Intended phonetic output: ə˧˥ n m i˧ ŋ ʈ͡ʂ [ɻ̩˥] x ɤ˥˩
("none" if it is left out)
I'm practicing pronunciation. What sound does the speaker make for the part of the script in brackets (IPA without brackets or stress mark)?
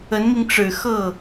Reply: ɻ̩˨˩